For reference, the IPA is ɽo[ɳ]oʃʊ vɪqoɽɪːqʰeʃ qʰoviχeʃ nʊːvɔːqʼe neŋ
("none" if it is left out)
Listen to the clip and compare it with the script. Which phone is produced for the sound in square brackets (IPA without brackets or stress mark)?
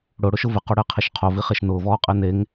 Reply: ɽ